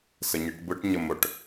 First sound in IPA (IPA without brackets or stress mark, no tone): s